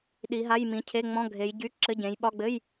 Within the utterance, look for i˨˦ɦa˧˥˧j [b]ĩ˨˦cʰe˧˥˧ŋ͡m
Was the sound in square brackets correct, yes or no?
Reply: no